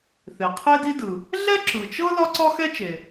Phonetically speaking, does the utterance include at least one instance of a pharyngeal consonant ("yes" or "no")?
no